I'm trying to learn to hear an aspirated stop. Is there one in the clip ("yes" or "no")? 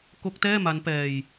no